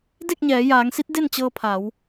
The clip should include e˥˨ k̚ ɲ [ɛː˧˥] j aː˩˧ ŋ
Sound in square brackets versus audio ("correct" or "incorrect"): incorrect